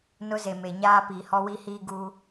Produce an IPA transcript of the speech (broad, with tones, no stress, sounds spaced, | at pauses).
n ʊ˦ z e˨ m e˨ ɲ aː˦ p i˨ h ɔ˦ w i˦ h iː˦ ɡ uː˦